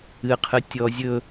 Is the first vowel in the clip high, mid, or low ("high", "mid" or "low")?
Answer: high